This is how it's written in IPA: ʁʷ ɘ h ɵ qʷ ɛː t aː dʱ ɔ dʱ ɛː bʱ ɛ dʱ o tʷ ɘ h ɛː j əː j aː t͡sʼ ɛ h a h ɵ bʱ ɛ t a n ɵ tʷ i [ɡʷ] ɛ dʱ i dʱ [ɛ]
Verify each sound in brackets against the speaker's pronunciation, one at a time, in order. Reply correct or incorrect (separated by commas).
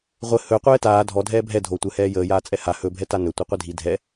incorrect, correct